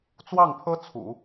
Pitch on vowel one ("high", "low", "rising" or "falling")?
falling